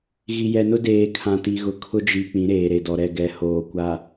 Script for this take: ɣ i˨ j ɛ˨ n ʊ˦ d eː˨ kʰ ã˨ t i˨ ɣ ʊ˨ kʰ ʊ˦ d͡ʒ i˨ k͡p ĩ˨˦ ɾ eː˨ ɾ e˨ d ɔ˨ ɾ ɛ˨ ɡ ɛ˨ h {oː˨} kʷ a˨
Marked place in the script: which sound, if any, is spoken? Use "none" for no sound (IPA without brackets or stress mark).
oː˨